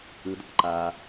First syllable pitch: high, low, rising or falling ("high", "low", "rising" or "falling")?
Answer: low